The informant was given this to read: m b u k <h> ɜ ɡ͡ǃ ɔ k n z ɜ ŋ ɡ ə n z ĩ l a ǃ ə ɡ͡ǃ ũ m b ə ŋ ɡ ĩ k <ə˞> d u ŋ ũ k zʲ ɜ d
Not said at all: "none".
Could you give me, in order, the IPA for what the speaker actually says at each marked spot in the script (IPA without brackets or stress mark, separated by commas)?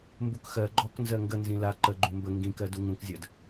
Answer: x, ɜ